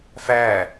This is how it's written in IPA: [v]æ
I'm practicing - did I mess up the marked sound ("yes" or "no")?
yes